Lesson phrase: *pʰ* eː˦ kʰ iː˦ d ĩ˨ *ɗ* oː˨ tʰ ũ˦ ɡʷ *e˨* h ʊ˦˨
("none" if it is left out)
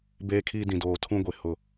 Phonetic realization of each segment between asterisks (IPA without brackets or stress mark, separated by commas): b, d, e˨